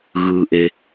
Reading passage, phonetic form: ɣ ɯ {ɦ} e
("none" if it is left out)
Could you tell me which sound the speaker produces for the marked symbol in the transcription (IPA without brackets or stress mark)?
ʔ